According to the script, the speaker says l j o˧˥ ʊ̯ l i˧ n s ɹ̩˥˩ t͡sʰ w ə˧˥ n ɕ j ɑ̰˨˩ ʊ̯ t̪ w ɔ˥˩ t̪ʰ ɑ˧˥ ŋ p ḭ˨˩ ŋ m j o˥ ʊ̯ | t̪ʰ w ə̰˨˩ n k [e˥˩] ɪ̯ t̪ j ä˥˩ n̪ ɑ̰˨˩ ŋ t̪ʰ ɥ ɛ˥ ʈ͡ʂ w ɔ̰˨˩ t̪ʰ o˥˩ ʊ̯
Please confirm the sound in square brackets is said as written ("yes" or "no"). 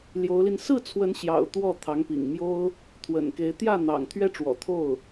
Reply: no